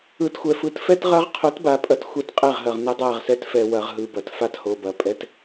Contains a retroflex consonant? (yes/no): no